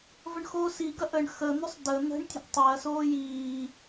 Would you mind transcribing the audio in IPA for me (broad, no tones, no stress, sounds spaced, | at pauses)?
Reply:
v ə ɳ x oː s i ɡ ɐ ʔ ə ɳ x ə n̪ ʏ sˤ d ə n̪ ə̤ ɳ tʲ ə̤ ʔ tˤ e ɐ̯ s oː j iː